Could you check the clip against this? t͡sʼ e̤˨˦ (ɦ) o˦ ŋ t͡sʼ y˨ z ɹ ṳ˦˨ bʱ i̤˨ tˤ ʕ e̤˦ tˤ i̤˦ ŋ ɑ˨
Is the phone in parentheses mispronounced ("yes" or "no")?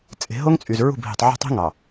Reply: no